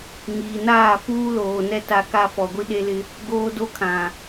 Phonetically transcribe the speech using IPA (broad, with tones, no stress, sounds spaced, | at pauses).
ŋ iː˨ n aː˦˨ f uː˦ l oː˨ n ɛ˦ t a˦ k a˦ f ɔ˨ ɡʷ i˦ ɗ e˦ l ɪ˦ | ɡ oː˦ d o˦ kʰ ã˨